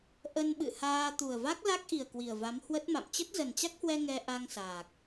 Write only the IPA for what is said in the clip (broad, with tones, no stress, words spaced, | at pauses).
ʔə˧nɓɨ̰˧˨haː˧ t̪u˨˩ə̯va˦˥k̚la˦˥k̚ʔi˨˩ə̯ kwi˨˩ə̯va˨˦mhwə˦˥t̚ma̰˧˨m t͡ɕə˦˥t̚zə˨˩nt͡ɕa˦˥k̚hwɛ˧ ŋɛ˧ ʔa˧ŋ saː˨˩k̚